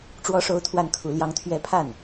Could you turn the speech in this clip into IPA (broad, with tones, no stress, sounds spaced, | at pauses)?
ʈ͡ʂ w ɔ˥ ʂ o˥ ʊ̯ t̪ʰ w a˥˩ n kʰ u˧˥ l j ɑ˧˥ ŋ t̪ʰ ɥ ɛ˧˥ pʰ a˥˩ n